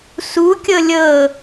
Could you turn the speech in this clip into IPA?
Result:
s u kʲ ɤ lʲ ɤ

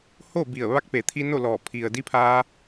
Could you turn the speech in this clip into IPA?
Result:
h oː˥˨ b i˧˩ ə̯ ʋ a˧˥ k̚ p e˩˧ t̪ʰ i˧ n o˥˨ l ɔː˧˩ pʰ i˩ ə̯ d i˧˥ pʰ aː˧

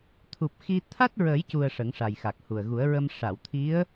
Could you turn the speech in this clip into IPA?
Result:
t̪ʰ u˨˩ p̚ x i˧ t̪ʰ a˦˥ t̚ ɹ ə˨˩˦ j c u˨˩ ə̯ ʂ ə˨˩˦ ŋ ʂ a˨˩ j x a˨˩ k̚ h u˨˩ ə̯ ɣ u˨˩˦ ə̯ ɹ ə˧ m ʂ a˨˩˨ w t̪ʰ i˧˥ ə̯

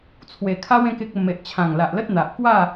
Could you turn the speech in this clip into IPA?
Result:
t͡sʰ w e˨˩ kʰ a˦ w ẽ˦ k e˦ k̚ ə˧ m e˨ ʔ t͡ɕʰ ã˨˩ ŋ l a˨ ʔ l ə˦ t̚ n̪ a˨ ʔ k w a˥˧

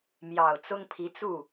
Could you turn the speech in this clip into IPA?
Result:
m j ɑ˨˩ ʊ̯ t͡s ʊ˥ ŋ pʰ i˧˥ t͡s u˥˩

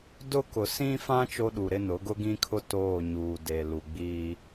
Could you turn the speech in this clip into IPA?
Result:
d ʊ˦ k ʊ˨ s ĩ˦ f ã˦ t͡ʃ o˦ ɗ u˨ ɾ ɪ˦ n ʊ˨˦ ɡ ʊ˦ ɡ ĩ˦ kʰ ʊ˦ t oː˦˨ ɲ uː˨ d e˨ l u˨ ɡ͡b iː˦

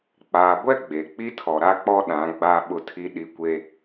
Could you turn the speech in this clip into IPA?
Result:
k͡p aː˨ ɡʷ ɛ˦ ɡ͡b e˨ k͡p i˦ tʰ ɔ˨ ɾ a˦ k͡p ɔ˦ ɗ ã˨˦ ɡ͡b aː˦ ɓ ʊ˦ tʰ i˦ ɗ i˨ kʷ e˨

